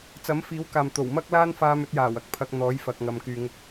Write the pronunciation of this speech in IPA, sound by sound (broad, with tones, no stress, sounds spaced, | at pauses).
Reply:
t͡s ɐ˨˥ m f iː˨˥ w k aː˨ m t̪ o˨˩ w m ɐ˥ k̚ l aː˥ n f aː˧ m ɵ˧ t̚ j aː˨˩ w ɐ˧ k̚ pʰ ɐ˧ k̚ n̪ ɔː˨˥ j f ɐ˨ k̚ ŋ ɐ˨ m k yː˨ ŋ ʊ˧ k̚